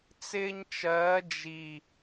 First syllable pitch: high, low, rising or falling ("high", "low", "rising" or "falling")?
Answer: high